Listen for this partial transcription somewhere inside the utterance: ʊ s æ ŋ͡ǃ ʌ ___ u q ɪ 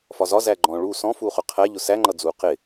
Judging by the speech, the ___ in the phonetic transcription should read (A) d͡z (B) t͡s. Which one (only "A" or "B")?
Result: A